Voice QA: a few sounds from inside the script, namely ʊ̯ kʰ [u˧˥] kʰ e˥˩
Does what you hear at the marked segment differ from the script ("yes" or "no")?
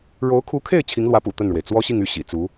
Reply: no